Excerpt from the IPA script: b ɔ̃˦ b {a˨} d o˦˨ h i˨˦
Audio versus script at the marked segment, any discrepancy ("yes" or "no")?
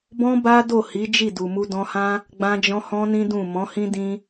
yes